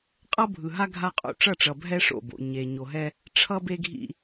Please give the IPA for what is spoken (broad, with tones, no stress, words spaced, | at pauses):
qʼʌ˦bʱɯ˨ɦa˦ ɡʱa˦qʼo̰˦ ʈ͡ʂʌ˦˨ʈ͡ʂʌ˨ bʱɛ˦ʂo̰˦˨bo̰˨ ɲe˨ ɲo˨ɦɛ˦ | ʈ͡ʂʰʌ˦be˦ɡʱḭ˦